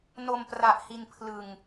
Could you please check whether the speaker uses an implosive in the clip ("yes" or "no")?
no